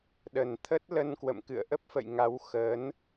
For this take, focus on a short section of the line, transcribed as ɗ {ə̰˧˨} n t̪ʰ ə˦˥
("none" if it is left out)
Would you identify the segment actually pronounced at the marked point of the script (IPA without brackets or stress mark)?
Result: ə˨˩